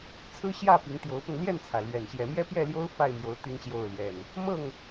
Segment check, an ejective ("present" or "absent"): absent